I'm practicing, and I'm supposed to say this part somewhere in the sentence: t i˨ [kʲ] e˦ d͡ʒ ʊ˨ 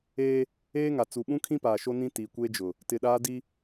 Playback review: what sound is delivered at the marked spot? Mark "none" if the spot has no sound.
kʷ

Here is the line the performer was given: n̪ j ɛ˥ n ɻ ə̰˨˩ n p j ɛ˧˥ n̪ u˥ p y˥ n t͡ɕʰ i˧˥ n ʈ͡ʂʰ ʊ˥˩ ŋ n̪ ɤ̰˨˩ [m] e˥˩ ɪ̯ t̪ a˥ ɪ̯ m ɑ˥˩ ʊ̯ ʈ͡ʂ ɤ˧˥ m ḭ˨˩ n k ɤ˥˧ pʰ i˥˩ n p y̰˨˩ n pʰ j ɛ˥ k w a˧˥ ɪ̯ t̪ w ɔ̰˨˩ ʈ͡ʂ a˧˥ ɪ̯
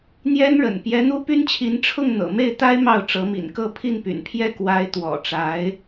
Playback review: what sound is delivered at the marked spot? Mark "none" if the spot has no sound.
m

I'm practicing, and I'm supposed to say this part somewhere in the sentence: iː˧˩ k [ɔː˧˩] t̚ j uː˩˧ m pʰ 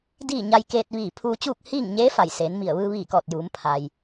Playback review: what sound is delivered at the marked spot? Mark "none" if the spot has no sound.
ɔː˧˩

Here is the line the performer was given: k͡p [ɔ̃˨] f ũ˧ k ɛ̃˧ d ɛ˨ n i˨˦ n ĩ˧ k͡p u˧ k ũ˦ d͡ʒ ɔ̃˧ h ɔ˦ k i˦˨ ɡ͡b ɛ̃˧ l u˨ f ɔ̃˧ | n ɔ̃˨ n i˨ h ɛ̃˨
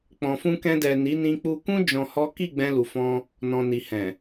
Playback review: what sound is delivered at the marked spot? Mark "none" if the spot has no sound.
ɔ̃˨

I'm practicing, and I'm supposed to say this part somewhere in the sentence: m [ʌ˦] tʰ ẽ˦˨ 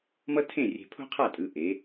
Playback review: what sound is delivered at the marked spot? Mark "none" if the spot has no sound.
ʌ˦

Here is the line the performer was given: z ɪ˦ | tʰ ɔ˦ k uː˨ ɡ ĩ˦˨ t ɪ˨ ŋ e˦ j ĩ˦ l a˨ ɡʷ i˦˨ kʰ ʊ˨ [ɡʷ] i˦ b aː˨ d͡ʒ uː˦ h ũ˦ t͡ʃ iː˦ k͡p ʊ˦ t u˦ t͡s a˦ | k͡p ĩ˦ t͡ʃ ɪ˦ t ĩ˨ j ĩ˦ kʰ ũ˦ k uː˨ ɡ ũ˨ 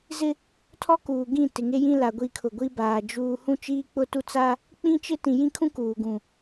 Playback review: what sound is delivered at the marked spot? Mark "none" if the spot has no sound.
ɡʷ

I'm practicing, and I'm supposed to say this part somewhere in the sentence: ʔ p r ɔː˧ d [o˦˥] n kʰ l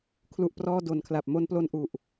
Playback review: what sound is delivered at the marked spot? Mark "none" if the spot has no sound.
o˨˩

